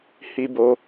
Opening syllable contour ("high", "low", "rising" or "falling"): high